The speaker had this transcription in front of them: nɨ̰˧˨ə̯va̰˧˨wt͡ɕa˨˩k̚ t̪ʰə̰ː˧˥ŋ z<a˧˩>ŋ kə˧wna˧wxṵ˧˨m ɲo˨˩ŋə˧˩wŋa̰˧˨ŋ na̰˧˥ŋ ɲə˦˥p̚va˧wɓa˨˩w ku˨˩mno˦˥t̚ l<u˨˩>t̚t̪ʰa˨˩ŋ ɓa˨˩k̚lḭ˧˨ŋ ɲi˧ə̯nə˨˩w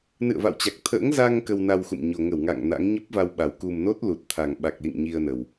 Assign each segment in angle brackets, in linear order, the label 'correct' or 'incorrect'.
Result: incorrect: a˧, correct

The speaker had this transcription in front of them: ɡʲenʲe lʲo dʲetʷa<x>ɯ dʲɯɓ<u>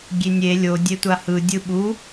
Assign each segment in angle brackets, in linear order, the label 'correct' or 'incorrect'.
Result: incorrect: h, correct

